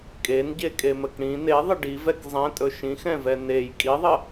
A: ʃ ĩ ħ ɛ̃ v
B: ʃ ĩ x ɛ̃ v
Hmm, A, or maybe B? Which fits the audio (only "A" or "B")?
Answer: B